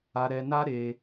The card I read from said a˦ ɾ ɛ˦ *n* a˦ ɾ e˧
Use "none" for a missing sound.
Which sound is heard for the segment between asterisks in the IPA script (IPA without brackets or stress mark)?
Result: n